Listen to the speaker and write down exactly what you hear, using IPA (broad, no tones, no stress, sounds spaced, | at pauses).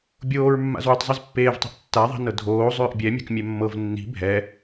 bʲ oː ɹ mː a̰ z w ʏ tˤ zˤ i z pː eː v tˤ i̤ ʔ tː a ðˤ i̤ n ɤ dʱ oː zˤ ʏː ʔ bʲ ɛ mʲ a̤ k mʲ ɛ mː ɤ v nː i̤ bʱ ɛ